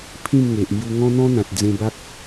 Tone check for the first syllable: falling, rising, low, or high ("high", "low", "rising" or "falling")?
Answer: falling